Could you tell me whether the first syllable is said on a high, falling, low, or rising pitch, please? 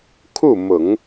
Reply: falling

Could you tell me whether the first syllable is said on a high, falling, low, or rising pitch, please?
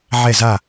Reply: falling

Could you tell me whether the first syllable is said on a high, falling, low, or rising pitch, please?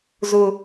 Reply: low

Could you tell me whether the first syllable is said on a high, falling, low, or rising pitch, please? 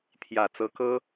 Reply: low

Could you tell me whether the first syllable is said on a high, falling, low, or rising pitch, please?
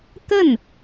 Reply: falling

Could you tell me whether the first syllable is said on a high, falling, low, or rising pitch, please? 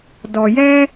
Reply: low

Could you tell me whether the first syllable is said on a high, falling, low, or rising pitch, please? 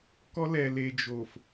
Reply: high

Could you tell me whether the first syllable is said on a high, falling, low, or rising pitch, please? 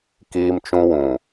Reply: high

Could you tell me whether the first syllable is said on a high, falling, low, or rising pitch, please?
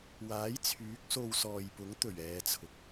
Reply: rising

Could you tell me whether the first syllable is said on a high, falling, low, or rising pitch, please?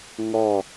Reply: falling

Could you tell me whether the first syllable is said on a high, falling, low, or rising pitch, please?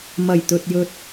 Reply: low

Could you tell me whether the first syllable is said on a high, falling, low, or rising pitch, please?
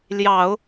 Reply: low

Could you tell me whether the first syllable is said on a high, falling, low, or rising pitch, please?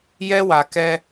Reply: high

